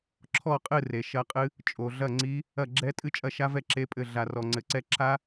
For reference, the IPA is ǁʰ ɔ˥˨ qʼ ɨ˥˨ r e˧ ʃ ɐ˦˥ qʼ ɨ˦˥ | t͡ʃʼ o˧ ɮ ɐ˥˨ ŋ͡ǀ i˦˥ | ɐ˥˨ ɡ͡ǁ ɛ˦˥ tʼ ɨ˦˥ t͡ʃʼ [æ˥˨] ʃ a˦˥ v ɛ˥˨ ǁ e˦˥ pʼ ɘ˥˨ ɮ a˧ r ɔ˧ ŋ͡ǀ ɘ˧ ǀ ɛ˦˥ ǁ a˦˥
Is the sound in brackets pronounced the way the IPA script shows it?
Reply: no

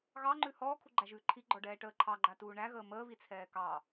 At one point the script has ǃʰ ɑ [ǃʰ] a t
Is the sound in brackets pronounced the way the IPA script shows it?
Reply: no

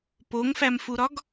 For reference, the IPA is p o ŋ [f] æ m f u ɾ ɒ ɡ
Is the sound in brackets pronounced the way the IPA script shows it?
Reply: yes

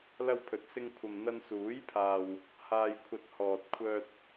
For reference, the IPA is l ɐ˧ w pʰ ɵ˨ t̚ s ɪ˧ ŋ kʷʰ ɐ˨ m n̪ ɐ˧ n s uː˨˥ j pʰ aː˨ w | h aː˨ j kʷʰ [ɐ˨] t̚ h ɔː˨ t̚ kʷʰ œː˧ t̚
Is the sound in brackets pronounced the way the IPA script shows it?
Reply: yes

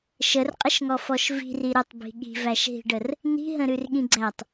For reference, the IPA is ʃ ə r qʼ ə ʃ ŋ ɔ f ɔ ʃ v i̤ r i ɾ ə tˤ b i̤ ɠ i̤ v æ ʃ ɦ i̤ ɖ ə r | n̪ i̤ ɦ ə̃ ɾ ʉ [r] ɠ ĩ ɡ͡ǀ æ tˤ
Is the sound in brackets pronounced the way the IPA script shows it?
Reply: yes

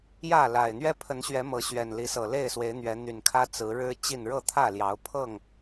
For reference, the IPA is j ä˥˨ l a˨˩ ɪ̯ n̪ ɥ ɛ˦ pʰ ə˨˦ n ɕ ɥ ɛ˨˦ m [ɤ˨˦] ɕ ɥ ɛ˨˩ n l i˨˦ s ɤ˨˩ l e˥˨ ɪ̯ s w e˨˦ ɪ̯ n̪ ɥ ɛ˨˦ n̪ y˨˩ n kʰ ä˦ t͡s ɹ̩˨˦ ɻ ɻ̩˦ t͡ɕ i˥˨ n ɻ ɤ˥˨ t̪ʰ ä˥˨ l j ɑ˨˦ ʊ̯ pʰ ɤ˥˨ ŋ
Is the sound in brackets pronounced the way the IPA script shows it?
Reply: yes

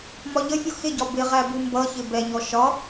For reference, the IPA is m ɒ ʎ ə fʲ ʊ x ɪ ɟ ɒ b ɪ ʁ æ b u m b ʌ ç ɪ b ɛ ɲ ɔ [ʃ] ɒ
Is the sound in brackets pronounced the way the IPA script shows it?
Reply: yes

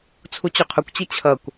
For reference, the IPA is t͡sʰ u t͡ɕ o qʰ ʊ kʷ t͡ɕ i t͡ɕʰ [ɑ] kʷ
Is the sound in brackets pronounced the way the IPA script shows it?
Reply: no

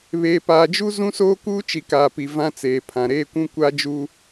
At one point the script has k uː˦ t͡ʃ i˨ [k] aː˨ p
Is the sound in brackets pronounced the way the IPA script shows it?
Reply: yes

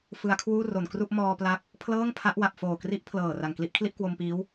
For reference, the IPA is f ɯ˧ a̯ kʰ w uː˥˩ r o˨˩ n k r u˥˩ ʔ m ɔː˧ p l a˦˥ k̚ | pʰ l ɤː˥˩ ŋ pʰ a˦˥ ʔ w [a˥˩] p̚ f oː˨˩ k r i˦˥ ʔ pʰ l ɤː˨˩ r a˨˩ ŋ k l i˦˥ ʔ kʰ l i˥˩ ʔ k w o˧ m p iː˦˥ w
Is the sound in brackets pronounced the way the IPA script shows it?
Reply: no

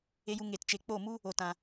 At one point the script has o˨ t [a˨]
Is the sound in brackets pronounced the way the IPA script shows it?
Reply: no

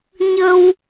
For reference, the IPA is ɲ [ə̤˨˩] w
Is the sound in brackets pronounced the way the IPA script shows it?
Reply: no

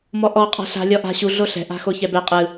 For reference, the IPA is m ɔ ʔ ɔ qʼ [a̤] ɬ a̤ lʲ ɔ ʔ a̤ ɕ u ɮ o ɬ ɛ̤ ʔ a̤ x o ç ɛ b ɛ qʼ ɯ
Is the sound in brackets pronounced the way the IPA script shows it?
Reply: yes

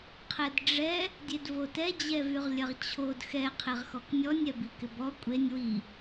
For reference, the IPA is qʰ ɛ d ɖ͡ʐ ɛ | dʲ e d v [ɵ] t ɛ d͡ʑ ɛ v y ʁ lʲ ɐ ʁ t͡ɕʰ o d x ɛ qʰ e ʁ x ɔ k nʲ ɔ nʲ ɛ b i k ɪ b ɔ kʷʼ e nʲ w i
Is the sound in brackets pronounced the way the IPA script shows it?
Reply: no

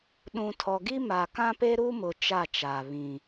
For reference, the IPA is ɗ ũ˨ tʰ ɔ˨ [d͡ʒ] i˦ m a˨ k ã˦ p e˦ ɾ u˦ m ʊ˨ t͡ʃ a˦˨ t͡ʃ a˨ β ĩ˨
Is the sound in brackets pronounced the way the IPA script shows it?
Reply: no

